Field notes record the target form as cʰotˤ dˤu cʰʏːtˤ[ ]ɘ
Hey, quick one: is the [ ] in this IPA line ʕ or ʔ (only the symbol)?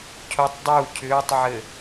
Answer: ʕ